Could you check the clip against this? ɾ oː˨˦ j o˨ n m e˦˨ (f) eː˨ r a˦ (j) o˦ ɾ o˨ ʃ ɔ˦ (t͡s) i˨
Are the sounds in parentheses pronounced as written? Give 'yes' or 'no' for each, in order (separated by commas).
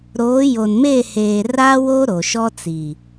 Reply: no, no, yes